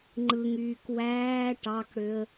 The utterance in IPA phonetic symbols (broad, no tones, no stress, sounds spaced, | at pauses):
ŋ͡ǃ ɯ ŋ yː k w æː ʈ ɑ k ɽ ø ə̯